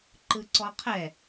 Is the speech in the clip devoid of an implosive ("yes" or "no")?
yes